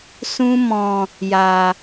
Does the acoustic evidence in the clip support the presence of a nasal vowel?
yes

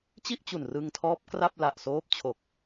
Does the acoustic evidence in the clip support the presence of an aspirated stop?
yes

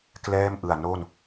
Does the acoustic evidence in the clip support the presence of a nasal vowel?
no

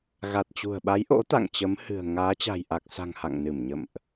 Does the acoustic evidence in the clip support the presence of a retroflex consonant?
no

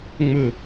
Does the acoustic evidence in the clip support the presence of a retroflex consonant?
no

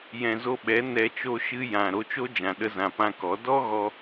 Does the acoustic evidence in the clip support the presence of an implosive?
yes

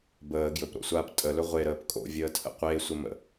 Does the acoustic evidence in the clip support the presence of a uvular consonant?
yes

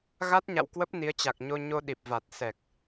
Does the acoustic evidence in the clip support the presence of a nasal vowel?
no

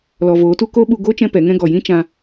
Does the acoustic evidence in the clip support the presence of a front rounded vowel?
no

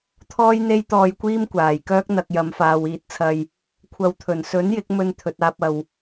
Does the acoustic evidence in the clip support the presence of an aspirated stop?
yes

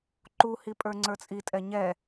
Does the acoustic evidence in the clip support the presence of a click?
yes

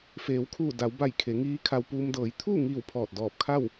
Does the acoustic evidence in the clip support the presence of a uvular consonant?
no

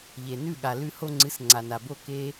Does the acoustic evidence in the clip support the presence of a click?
yes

